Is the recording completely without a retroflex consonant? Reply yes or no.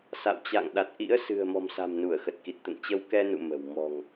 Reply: yes